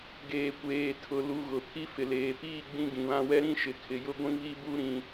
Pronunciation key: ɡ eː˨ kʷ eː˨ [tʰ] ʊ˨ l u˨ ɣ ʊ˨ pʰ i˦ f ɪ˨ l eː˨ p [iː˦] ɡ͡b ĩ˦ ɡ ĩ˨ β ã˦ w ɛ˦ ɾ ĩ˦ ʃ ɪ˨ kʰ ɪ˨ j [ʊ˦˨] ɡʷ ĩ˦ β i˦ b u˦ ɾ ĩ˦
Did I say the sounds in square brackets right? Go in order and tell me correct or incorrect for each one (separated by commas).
correct, incorrect, incorrect